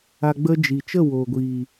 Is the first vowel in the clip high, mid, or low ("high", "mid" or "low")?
low